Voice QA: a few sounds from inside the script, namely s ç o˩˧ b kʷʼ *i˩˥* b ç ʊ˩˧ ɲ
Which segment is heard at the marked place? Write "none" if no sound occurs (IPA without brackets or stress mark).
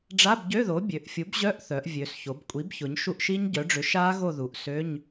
i˩˥